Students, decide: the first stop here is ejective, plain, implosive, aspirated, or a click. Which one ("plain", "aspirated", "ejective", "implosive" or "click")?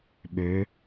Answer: implosive